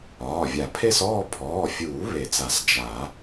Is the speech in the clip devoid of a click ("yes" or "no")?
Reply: yes